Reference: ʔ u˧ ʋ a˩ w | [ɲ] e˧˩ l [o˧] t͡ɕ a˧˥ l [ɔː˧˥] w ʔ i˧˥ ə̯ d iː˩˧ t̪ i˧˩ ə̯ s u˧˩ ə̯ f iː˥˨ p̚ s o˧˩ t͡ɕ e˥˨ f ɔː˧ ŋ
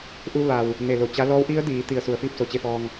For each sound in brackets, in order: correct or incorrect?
incorrect, incorrect, correct

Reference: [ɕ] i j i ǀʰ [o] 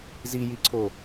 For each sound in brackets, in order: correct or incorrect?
incorrect, correct

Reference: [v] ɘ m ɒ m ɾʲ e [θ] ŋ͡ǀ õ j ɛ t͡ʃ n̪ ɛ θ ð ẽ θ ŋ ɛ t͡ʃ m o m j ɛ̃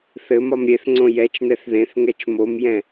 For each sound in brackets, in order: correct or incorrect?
incorrect, correct

